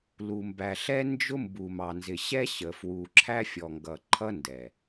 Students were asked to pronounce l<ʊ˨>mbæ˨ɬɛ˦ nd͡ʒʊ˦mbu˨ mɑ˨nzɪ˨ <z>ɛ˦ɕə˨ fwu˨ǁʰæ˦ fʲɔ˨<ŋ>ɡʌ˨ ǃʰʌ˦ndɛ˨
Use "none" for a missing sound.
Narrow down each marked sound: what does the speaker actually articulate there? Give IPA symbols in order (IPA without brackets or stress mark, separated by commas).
u˨, ɕ, ŋ